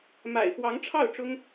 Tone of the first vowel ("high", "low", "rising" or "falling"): low